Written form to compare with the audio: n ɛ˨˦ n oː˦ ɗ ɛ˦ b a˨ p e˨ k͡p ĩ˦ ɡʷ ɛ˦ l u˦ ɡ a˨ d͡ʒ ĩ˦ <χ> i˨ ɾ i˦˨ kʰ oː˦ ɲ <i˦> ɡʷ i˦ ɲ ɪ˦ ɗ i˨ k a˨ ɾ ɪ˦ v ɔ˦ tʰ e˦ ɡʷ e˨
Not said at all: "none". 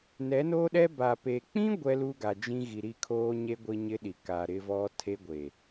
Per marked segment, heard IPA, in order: ɣ, e˦

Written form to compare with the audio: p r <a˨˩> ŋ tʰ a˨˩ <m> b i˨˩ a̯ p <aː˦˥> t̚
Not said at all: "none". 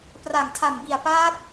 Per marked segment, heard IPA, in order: a˨˩, m, aː˦˥

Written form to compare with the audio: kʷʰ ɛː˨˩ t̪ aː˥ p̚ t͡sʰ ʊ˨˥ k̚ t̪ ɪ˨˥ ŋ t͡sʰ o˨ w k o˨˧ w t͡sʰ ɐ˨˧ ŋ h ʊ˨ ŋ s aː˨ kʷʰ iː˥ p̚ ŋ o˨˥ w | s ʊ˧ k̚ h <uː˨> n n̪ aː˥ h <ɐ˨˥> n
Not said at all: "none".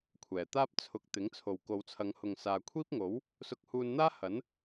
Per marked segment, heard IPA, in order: uː˧, ɐ˨˥

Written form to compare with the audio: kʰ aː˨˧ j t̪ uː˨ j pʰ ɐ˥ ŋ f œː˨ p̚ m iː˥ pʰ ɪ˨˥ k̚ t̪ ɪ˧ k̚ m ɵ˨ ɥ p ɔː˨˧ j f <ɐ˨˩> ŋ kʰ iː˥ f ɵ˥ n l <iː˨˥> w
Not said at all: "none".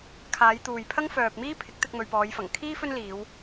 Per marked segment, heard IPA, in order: ɐ˨˩, iː˨˧

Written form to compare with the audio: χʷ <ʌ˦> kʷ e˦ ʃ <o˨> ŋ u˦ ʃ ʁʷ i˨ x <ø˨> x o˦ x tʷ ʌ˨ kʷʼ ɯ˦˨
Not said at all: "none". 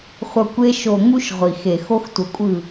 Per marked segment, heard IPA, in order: ʌ˨, o˨, e˨

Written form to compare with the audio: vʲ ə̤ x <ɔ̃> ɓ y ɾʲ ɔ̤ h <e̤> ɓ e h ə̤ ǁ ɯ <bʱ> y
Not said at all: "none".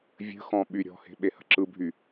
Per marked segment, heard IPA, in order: ɔ̃, e̤, bʱ

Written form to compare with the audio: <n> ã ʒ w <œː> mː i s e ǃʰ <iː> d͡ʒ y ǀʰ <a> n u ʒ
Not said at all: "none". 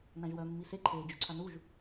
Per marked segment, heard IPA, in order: n, œː, eː, a

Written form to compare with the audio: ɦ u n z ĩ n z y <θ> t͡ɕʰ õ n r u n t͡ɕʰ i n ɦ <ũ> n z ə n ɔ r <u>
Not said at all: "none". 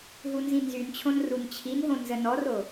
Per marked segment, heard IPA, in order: n, õ, o

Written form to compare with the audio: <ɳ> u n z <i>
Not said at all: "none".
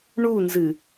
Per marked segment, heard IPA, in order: ɳ, ɨ

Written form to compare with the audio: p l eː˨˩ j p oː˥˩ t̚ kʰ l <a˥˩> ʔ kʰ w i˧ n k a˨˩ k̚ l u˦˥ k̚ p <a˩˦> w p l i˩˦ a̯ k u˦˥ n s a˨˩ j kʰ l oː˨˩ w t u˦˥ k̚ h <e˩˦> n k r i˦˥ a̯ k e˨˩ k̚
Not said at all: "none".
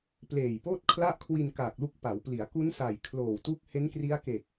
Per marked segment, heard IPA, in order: a˥˩, a˩˦, e˦˥

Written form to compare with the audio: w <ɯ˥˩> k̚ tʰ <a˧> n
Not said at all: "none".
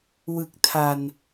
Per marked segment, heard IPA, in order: ɯ˨˩, a˨˩

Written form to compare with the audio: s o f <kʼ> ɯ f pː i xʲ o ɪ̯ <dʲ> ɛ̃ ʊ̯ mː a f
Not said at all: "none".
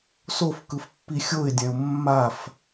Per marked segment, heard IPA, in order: k, dʲ

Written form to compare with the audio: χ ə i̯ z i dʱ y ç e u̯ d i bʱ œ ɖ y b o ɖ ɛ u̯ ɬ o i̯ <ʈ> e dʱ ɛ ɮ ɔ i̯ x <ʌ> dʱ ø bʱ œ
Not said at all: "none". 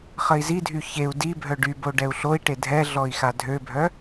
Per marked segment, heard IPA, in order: ʈ, a

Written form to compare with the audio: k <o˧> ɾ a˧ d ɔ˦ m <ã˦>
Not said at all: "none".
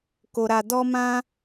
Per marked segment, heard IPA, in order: o˧, ã˦

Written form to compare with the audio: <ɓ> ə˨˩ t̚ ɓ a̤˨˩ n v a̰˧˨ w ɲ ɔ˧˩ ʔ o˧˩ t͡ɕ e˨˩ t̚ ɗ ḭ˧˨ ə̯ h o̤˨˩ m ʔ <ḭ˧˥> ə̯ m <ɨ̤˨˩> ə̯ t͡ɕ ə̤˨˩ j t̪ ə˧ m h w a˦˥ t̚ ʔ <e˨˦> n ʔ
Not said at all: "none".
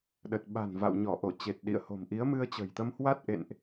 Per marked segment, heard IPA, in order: ɗ, i˨˦, ɨ˧, ḛ˧˨

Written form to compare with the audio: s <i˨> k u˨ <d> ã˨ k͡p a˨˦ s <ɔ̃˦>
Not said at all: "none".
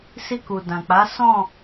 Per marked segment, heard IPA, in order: i˧, d, ɔ̃˦˨

